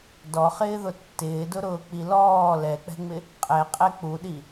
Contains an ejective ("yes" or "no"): yes